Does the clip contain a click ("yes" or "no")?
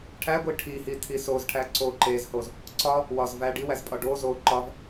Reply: yes